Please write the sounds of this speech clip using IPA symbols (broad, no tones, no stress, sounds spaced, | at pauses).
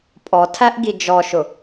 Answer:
pʼ ɔ tʰ æ ʔ ɡ i d͡ʒ ɔ ʃ ʊ